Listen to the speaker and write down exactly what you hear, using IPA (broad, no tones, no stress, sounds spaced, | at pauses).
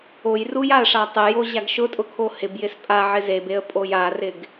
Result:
o j r u j a ə̯ ʂ a tˤ ɪ j o ʑ a ɡ ʃ ʊ tʼ ʊ kʰ o h ɪ b j ɪ s pʼ a ʕ ɪ z e b e ə̯ pʼ o j a r ɪ ɡ